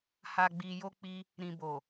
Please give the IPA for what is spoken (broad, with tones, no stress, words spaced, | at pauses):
ha˨ɡ͡bi˨jo˧k͡pi˧ | ɾĩ˨bo˨